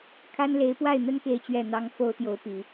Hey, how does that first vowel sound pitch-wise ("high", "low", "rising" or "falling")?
high